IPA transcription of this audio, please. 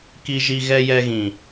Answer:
ki˦ʒi˦ ɣɛ˦ jɛ˦ɣĩ˨

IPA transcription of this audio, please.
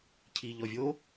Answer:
cʰiʎɔvʲo

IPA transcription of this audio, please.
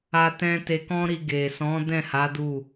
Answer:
a˧tɛ̃˧ te˧kɔ̃˦ɾi˧ ɡe˨sɔ̃˨˦ dɛ̃˦˨ha˨˦ du˦˨

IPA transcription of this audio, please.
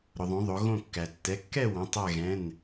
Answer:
ɾʊ˩ðˤõ˩˧ðˤo˩˧ ɣõ˧˩kːæ˩tːɛ˩˧˩kːɛ˥˨ wõ˩˧˩tˤæ˧˩ɣɛ̃˩˧˩n

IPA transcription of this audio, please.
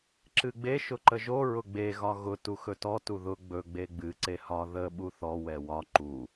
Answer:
ǁɨɡ͡be ʃʊǃəʒo ɹʊɡ͡be ɣɒɣʊ tuxɵtɔ tuðʊ ɡ͡bɵ ɡ͡beɡ͡bɨ ǀehɒ ðə ɓuθɔ wɛwɒ ǃu

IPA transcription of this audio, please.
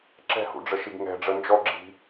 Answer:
ǁɛ̤hṵɖ͡ʐəʃiɡ ŋɛ̤ ɖ͡ʐənd͡ʒɔɡ͡ǁi̤

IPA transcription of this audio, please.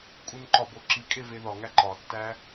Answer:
kʼunǃɒbo ǁikʼe veðɒŋæ ǃɒtːæ

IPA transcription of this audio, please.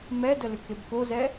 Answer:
mɛdəlʏkeb kozɛ

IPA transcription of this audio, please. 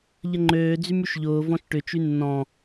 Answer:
ʎəŋ͡ǃøː d͡zymyʃʎʊː vɔ̃ʃʈʏ t͡ʃynːɔ̃

